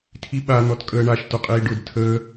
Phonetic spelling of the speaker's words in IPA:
tʰ i ɓ a n̪ ɔ t kʼ əː ɳ a ʃ t ʊ qʼ iː ɖ ʊ d tʰ əː

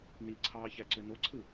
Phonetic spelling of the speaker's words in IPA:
n i ǀʰ ɑː ç æ ǀ ø n o ǀʰ ɯ

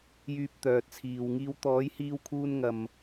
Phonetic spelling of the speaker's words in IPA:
j yː˧ p̚ t̪ œː˨ t̚ t͡sʰ iː˨ w ŋ iː˧ w t̪ ɔː˨˧ j h iː˧ w kʰ uː˧ n ŋ ɐ˨ m

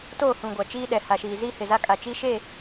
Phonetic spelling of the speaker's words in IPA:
t oː˦˨ h ũ˨ ɡʷ a˨ t͡ʃ iː˦ ɗ ɛ˨ h a˨ ʃ iː˨ z iː˦ h ɪ˨ z a˦ kʼ a˨ t͡ʃ i˦ ʃ e˦˨

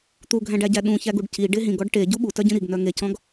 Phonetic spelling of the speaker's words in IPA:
t̪ u ɡʱ æ̃ ɖ æ ɟ æ ɗ ũ ç æ ɡ u ɖ c i ɖ e ɦ ĩ ɡ ɔ ɖ ʈ e ɟ u ɓ u t œ ɟ ĩ ɾ i ɡ n œ ŋ e c ɔ̃ ɡ

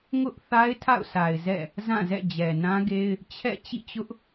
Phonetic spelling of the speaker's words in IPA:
ŋ ʊ˦ ʔ θ a˦ ɪ̯ tʰ a̰˦˨ ʊ̯ s a˨ ɪ̯ z ɛ̰˦˨ | z ã˦˨ z ɛ̰˦˨ d͡ʑ ɛ˨ n ã˦ ɡ e˦ ɪ̯ | t͡ɕʰ ɛ̰˦˨ t͡ɕ ḭ˦˨ t͡ɕ ʊ˦ ʔ

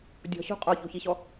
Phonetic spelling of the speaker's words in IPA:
dʲ ɔ̤ ɕ o̤ qʼ ɔ ç o̤ ç i ɕ ɔ

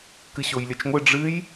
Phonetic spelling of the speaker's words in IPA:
k ɨ ɕ o j lʲ ɐ t͡ʃ ŋʷ e ɖ͡ʐ ɨ j

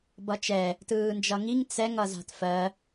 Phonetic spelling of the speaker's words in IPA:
b ʌ t͡ʃ ɛ | t ɯː n d͡ʒ ʌ ŋ i ŋ t͡s ɛ ŋ ʌ z a̤ t f ɜ

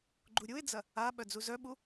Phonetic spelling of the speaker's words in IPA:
ɡ͡ǃ u ɾʲ u ɪ̯ d͡z ɐ | a ɓ œ d͡z u z œ ɓ u

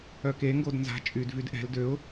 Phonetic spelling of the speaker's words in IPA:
œ k e ŋ ɡ o d n z a̤ t͡ʃʼ y d v y d ʔ ɛ̤ l d ø ʊ̯

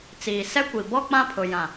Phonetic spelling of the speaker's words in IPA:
t͡s iː˨ s ɛ˦ kʷ i˨ b ɔ˦ k͡p ã˦ pʰ ʊ˨ j ã˨

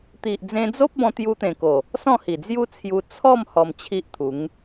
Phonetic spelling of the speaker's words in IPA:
t̪ i˨ ʔ d͡z ẽ˧ d͡z o˦ p̚ b ɔ̃˧ t̪ j u˧ t̪ ẽ˨˩ k o˨˩ | s ɔ̃˥˧ h i˨˩ d͡z j u˦ t͡sʰ j u˧ t͡sʰ ɔ˥˧ m h ɔ˧ m t͡ɕʰ i˦ ʔ t̪ʰ u˨˦ ŋ

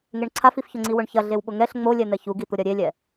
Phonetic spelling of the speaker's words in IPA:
ŋ e ɳ ǀʰ a f i f ç ʊ ŋ͡ǀ i w ʊ ɳ ç ɐ ɮ e w ɓ ʊ ŋ ɛ ɬ ŋ͡m o lʲ ɛ n̪ ɛ ç u ɡ i t̪ ʊ ɾʲ ɐ ɾʲ e lʲ ɛ

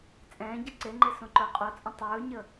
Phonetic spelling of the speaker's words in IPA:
t͡sʼ ɛ̃ː ɟ ʌ ǀ e ŋ͡ǃ e s õ ǃ ʊː qʼ o t͡sʼ ə̃ tˤ ɵː ɲ ə

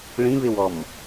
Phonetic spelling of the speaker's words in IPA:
ɭ ĩ β ɪ w ɔ m

